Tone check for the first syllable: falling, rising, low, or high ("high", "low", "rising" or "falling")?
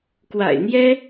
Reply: low